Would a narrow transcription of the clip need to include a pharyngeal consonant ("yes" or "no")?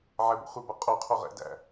yes